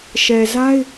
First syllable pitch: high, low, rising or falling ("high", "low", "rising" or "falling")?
low